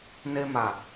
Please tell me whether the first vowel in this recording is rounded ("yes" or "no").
no